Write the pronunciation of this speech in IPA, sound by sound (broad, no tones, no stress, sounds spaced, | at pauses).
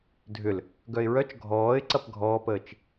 dʱ ʏ l | ɡ œ ɪ̯ ɹ œ t͡ʃ ɡʱ ɔː ɪ̯ ǀ ɐ p ɡʱ ɔː p əː t͡ʃ